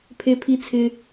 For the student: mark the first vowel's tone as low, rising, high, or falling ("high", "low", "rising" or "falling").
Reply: high